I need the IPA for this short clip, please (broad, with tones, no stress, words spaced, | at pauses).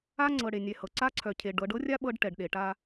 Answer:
a˦ŋ͡ǀɤ˨ ɽe˨nʲɛ˨hɤ˨ ǀa˦ǀʰœ˨cʰe˨ ɖɤ˨˦ɖ ɤ˦rʲa˦ ɓɤ˦ɖʈɛ˨ɖɗe˨ ʈa˦